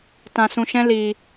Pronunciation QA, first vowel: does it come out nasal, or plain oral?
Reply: nasal